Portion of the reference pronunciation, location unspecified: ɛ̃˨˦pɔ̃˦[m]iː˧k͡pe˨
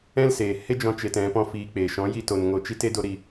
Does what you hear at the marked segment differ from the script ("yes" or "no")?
yes